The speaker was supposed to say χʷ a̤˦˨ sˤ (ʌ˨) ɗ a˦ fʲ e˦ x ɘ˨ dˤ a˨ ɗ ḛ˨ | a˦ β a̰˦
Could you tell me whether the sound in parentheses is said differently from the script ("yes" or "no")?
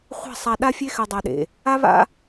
yes